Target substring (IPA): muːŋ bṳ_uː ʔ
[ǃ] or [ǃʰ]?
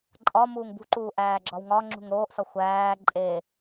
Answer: ǃ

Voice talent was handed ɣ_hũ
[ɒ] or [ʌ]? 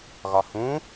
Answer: ɒ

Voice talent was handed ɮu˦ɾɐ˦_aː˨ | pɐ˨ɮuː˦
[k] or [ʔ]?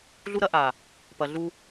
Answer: ʔ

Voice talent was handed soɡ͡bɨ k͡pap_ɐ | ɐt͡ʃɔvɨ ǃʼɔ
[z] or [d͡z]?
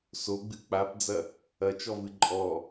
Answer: d͡z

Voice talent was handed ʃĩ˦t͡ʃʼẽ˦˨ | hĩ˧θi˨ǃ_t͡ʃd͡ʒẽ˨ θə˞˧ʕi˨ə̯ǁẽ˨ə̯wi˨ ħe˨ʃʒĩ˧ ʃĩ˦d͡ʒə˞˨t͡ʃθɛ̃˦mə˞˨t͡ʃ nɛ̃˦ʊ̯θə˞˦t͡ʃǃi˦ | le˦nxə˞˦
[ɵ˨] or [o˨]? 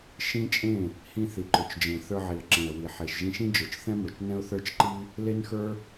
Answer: ɵ˨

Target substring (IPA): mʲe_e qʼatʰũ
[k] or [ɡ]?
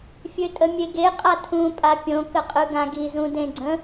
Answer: ɡ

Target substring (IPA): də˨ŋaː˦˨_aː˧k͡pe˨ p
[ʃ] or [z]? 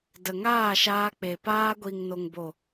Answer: ʃ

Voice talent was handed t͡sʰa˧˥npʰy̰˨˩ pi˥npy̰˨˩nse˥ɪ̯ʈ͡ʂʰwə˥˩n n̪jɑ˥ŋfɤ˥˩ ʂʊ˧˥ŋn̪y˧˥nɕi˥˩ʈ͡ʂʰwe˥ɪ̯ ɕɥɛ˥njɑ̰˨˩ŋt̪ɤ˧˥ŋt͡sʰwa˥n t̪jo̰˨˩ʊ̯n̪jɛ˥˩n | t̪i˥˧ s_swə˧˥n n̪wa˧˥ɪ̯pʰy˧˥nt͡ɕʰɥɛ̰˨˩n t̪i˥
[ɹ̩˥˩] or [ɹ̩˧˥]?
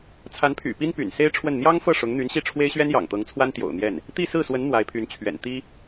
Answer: ɹ̩˥˩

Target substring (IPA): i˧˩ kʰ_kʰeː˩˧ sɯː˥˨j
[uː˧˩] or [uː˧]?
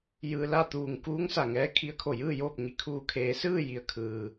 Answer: uː˧˩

